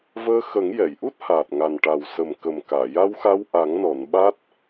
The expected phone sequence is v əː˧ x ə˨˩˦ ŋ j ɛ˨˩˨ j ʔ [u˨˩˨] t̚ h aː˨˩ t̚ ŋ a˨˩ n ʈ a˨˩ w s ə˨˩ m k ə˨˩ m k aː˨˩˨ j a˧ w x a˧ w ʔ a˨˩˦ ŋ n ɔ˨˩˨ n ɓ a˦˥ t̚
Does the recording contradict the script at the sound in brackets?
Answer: yes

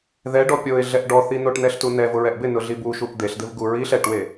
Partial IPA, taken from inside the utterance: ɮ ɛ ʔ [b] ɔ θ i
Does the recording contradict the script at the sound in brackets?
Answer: yes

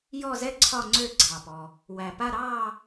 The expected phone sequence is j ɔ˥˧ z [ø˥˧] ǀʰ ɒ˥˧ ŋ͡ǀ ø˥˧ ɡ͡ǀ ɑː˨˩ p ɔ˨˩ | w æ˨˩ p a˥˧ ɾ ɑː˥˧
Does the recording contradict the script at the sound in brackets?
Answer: yes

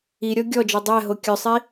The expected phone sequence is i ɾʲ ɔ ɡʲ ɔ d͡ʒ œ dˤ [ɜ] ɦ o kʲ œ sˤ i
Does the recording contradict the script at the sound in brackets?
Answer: yes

